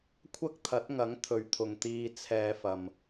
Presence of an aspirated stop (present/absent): present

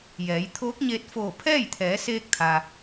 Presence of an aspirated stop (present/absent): present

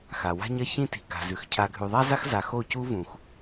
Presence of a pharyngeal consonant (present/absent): absent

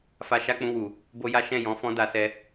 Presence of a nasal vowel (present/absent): present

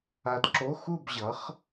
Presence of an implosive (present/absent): absent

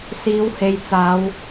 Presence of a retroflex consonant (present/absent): absent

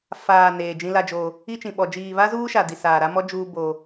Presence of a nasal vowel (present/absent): present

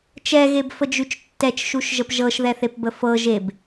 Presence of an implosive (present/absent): absent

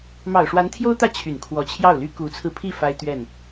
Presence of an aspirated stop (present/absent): present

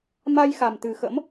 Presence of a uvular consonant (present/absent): absent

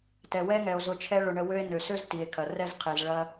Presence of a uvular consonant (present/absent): present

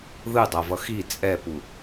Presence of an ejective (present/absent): present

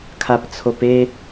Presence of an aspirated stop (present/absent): present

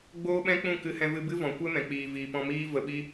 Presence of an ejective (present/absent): absent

